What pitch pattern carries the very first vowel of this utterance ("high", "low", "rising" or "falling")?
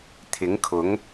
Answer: rising